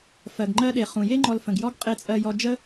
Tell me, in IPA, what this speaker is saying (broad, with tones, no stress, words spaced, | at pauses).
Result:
fɜ˨ɡŋ͡ǃɜ˧ɗe˨ χũ˨je˦ŋ͡ǃɔ˧l fə̃˨ɡ jɔ˦ɡ qʼe˧t͡sʼɜ˧jɔ˧ d͡ʒə˦